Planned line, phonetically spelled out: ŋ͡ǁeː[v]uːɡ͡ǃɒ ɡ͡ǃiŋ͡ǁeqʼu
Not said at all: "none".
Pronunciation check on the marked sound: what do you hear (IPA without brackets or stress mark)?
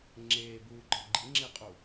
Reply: b